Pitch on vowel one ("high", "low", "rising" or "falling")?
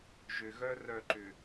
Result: low